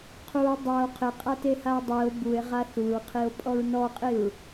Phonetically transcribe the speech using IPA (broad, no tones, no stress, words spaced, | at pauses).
qʰuo̯ dˤao̯ qʰɪqʼatehao̯ dˤio̯ bue̯ʁa θuɹqʰio̯pʼɔɹ nɔqʼiɹ